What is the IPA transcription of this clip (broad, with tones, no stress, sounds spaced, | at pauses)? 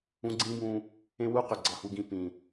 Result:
ũ˦ ɡ͡ǀ ĩ˦ b ũ˧ | ẽ˦ w u˦ q ø˨ ɡ͡ǀ ɑ˧ h u˧ ɡ ĩ˧ p ĩ˨